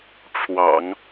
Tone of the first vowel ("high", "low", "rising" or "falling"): low